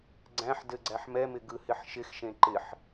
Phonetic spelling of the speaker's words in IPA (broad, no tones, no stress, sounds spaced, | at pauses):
ɡ͡ǀ æ̃ ħ d ɘ ɡ͡ǀ æ ħ m ɛ m ɪ ɡ ɯ h ɪ ħ ʃ ɪ x ʃ ẽ ǃ ɪ ħ